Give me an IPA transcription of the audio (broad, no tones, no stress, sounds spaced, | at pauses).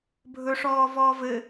bʱ ɵ ʂ ɔː v ɔː v ɘ